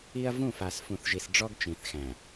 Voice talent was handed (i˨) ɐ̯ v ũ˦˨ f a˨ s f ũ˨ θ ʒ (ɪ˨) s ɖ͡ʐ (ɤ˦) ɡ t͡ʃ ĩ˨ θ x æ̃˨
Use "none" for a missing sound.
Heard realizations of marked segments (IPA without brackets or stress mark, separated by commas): i˦, i˨, ɔ˦